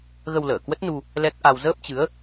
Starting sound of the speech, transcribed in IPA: ɣ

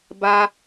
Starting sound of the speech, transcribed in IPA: b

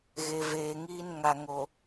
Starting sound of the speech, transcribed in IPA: ɣ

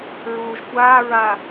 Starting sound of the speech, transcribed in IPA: ɹ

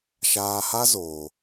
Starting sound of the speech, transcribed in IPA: ʃ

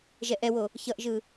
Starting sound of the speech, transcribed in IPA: ʒ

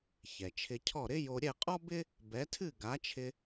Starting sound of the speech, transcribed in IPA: ç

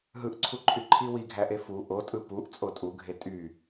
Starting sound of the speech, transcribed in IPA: ɦ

